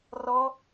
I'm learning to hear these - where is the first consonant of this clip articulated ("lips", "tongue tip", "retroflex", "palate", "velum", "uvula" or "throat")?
tongue tip